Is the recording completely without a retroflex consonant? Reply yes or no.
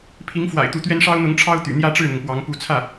no